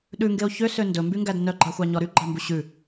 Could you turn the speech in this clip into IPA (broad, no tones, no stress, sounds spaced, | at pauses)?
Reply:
ɗ ʉ ŋ ɡ e o̯ ç ø s ø n d ɵ m b y ŋ ɡ æ d n œ ɡ͡ǃ ɑ xʷ ɑ ɲ ɔ ɾ y ɡ͡ǃ ɑ m b u ɕ ʉ